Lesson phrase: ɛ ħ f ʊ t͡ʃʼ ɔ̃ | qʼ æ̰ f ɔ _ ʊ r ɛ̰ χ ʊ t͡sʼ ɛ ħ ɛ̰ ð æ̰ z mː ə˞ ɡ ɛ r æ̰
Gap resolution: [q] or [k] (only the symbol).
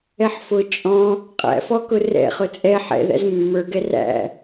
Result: k